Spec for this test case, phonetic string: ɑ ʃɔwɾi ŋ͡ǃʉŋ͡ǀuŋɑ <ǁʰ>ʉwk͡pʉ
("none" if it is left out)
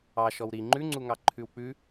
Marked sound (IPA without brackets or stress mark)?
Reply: ǃʰ